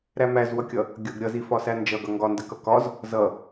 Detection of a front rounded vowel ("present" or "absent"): absent